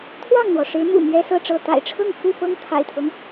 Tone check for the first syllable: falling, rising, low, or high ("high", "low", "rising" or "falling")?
falling